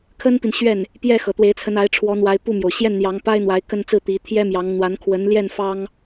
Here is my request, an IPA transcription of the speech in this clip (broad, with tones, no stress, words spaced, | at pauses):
kʰə˥npi˨n ɕɥɛ˥˩n | pjɛ˥˩ xɤ˨˩t̪we˧˥ɪ̯t͡sʰə˧˥n a˧˥ɪ̯ʈ͡ʂʰwɔ˧˥n̪wa˧˥ɪ̯ pu˥˩mjo˩ʊ̯ ɕjɛ˥˩nn̪jɑ˧˥ŋpa˥ɪ̯ n̪wa˧˥ɪ̯kə˥˧nt͡sɹ̩˥˩ t̪i˧˥ t̪ʰjɛ˥mjɑ˧˥ŋ n̪wa˧˥nkʰwə˧˥nljɛ˥˩n fɑ˥ŋ